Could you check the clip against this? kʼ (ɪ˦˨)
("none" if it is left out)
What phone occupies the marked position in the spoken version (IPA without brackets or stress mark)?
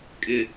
ɪ˦˨